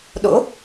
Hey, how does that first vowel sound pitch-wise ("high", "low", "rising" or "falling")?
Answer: rising